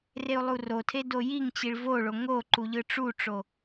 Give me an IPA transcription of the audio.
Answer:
reu̯lˠurotʰe dojiŋt͡ɕiɭ voɭo ŋo ǃuʎɯʈ͡ʂuʈ͡ʂo

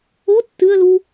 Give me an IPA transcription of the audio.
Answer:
o tːɨə̯lu

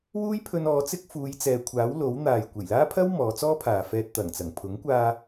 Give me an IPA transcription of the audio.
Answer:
wuː˥jpʰɵ˧n ɔː˨˧t͡sɪ˥k̚ fuː˨˧jt͡sɛː˨kʷʰaː˨˥w lo˨˥wn̪aː˨j kʷe˨˩jlaː˥pʰɐ˥w mɔː˨˧t͡sɔː˥pʰaː˨fɛː˧t̚ t̪ɐ˨˩ŋt͡sɐ˨˩ŋ pʰʊ˨˥ŋkʷaː˧

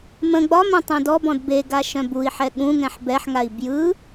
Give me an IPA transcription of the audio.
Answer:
mə̃ ɡ͡bɒmœ̃ tˤœ̃dɔbɔ̃d beɡa ʃœ̃bui̯ħɛ ɠũŋɛ̃ħ bɛħŋai̯ bjɯ

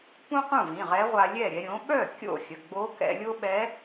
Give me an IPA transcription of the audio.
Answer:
pũ˥qũ˥˩vĩ˩˧˩ ʁɛ˧˥ʁʷa˧lʲɛ˥˩ ɾʲɛ˧ɾʲõ˩˥ ɓœ˥˩ kʲo̰˥˩xʲə˩˧˩ ɡ͡bo˧˥kɛ̰˧ lʲo˥ ɓɛ˧˥

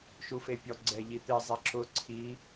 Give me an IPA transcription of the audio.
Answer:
ʃufepʲɔ ɡ͡ǀɛʎit̪ɪ zˤiǁʊ ǀʰi

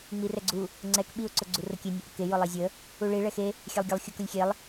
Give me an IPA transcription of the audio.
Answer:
ŋ͡mirɛɡ͡ǀu | ŋ͡ǀɛk ɓiʊ̯ ǀʊɡ͡ǀurʊkʲe nʲeʔəke jʊlˠizʲə | uɭi ɭɛxe | xʲɛlˠɡʲəlˠ xʲʊ kʊlʲxʲelˠ

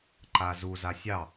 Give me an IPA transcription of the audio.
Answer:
ǃazu zasʲɑ

